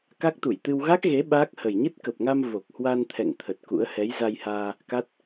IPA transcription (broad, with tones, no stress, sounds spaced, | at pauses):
k a˦˥ k̚ t̪ u˧˩ j t̪ ɨ˧ w ɣ a˦˥ k̚ ɣ e˨˦ ɓ aː˦˥ k̚ h ə˨˩ j ɲ ɨ˦˥ t̚ k ə˨˩ p̚ ŋ a˧ m v o˨˩ k̚ h w a˧ n t̪ʰ ɛ̰˧˨ ŋ t̪ʰ ə˨˩ t̚ k ṵ˧˥ ə̯ h ɛ˨˦ j z a˧ j h aː˧ | k a˦˥ t̚